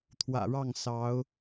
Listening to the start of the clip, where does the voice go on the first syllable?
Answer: low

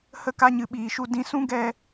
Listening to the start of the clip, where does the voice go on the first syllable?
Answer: falling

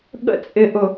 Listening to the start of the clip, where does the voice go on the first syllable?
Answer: high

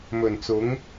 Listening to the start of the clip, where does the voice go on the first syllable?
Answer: low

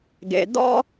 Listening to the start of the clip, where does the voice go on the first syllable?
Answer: low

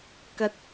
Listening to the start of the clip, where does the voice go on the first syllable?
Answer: low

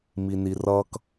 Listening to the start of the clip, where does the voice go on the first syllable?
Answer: low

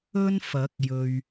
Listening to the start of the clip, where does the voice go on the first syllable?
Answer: high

